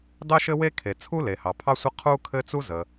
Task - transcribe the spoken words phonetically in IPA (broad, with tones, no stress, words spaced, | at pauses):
dɑ˥ʃɘ˥we˥ kʰe˩t͡sʰu˥le˩hɑ˩ pʰɑ˥sʷə˥ qʰu˥kʰɘ˥ t͡su˥zə˩